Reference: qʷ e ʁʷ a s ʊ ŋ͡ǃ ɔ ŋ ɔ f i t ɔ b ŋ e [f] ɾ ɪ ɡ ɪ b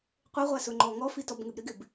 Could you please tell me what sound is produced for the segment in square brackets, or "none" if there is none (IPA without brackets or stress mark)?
b